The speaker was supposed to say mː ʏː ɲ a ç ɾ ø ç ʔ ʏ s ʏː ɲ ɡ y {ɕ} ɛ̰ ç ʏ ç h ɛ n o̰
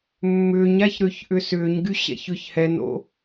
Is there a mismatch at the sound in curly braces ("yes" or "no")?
no